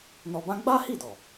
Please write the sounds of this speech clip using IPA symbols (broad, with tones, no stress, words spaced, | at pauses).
nɔ˧bã˦ ɡ͡ba˦hi˦˨dɔ˨